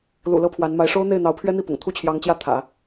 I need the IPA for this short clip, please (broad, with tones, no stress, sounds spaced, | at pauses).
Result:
l ṵ˨˩ l ɤ˥ pʰ w a˧˥ n m a˧˥ ɪ̯ ʂ o˥ ʊ̯ n̪ e˥˩ ɪ̯ n̪ ɑ˧˥ ʊ̯ pʰ ɥ ɛ˥ n̪ i˥˩ p ʊ̰˨˩ ŋ t̪ʰ u˥˩ t͡ɕʰ j ɑ˧˥ ŋ t͡ɕ j ä˥˩ t̪ʰ ä̰˨˩˦